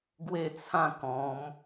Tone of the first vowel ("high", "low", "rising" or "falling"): falling